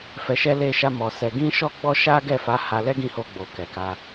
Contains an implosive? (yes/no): no